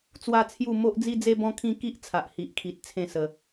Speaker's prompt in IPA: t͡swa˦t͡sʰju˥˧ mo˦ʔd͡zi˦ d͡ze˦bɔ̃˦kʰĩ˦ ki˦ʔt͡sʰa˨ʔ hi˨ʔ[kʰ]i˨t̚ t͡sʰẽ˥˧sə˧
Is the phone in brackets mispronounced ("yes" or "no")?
no